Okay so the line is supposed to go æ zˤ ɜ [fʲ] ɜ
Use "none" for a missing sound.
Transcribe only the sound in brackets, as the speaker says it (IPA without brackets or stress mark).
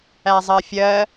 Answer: fʲ